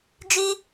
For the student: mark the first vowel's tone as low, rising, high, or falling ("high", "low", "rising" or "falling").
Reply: high